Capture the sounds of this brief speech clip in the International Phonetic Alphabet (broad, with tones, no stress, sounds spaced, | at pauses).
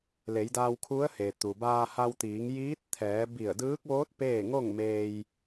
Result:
l e˩˧ j d aː˧ w kʰ u˧˥ ə̯ h e˩ t̪ u˩ b aː˧ h a˧ w t̪ iː˩˧ ŋ j iː˧˥ t̚ t̪ʰ ɛː˩˧ b i˧˩ ə̯ d ɯː˧˥ k̚ ʋ oː˧˥ t̚ p eː˥˨ ŋ o˥˨ ŋ m eː˧ j